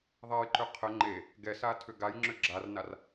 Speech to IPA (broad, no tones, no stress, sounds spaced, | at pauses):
ðˤ ɛ j ǃ ʏ qʰ ə ŋ͡ǃ e | ɡ ɛ s a tʰ ʏ ɡ a j ŋ͡ǁ ʏ ɡ͡ǁ a r n a r